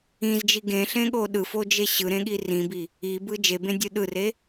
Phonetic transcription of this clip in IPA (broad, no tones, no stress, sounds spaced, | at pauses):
ĩ z d͡ʒ i ɡ ẽ ɬ ẽ ɠ o ɗ ɯ f o d͡ʒ e ɕ ɯ ɾ ẽ ɠ i r ĩ b i | i b ɯ d͡ʒ e b ẽ dʲ ɯ ɗ ɯ r e